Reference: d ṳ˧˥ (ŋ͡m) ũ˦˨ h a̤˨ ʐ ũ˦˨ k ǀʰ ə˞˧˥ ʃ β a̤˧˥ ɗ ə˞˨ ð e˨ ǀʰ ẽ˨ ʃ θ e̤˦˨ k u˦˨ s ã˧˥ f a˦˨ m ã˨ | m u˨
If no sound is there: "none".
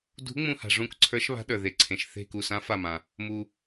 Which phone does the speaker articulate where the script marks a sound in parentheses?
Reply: ŋ͡m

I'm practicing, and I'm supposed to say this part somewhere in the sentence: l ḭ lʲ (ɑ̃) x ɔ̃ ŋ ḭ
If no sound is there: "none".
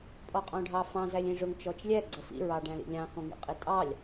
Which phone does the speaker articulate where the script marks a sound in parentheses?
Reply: ɑ̃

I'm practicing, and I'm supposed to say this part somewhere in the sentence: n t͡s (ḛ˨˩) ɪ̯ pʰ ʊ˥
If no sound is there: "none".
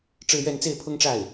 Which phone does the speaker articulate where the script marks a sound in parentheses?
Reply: e˥˩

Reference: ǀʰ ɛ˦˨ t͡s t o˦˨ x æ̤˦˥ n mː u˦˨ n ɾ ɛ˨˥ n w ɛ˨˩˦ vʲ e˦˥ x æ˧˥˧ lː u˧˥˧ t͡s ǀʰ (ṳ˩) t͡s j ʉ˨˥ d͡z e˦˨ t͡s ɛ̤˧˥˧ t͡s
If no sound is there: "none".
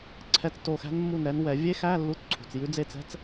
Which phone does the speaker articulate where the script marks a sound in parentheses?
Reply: ṳ˩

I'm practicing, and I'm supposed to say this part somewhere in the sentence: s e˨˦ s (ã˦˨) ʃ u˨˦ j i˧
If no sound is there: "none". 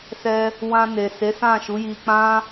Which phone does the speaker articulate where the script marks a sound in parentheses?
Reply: ã˦˨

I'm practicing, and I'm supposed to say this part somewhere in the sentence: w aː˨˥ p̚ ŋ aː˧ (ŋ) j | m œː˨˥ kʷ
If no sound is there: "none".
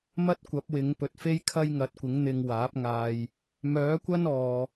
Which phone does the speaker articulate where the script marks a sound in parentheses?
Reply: none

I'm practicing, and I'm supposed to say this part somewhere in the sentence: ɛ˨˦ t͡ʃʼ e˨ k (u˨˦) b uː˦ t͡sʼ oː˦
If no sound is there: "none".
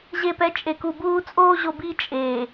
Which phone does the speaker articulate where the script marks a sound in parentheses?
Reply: u˨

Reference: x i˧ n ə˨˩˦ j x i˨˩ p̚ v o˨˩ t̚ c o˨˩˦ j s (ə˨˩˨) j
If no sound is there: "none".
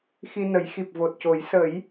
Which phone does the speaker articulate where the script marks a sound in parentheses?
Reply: ə˨˩˦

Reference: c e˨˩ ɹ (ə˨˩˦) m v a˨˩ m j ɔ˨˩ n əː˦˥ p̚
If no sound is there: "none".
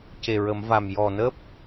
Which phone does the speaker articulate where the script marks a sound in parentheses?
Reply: ə˨˩˦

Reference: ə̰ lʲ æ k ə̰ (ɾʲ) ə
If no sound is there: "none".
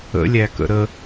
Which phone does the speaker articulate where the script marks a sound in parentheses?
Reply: ɾ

